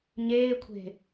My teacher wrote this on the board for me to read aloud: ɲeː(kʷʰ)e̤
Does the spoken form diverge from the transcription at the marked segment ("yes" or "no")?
no